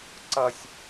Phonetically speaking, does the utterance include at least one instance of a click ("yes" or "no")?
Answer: yes